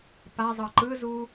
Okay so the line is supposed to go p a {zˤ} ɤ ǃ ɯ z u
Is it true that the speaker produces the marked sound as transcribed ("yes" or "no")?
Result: yes